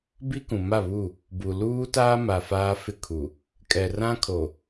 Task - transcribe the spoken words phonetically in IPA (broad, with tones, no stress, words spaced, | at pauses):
bi˦kũ˨ma˦˨βu˦˨ | bu˨ luː˦taː˦ma˨ faː˦fɪ˦˨kʰu˨ | kʼɛ˨rã˦kʰo˨